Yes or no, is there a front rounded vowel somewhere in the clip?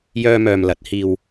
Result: yes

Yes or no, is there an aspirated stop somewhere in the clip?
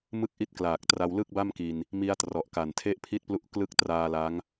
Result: yes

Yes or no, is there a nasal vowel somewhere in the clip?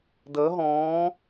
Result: yes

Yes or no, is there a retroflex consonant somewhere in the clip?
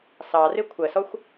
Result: no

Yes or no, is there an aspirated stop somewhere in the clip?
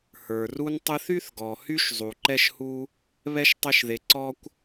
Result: no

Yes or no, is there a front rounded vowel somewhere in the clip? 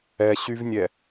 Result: yes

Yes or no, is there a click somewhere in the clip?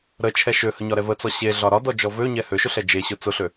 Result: no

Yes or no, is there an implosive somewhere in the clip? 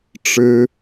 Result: no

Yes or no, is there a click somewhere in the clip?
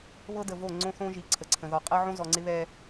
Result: yes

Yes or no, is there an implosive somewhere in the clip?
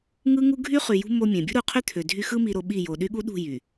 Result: yes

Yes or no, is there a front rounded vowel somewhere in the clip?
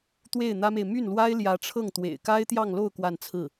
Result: yes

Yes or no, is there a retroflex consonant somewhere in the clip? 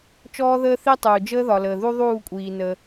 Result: no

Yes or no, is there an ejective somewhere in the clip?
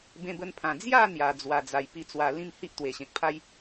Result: no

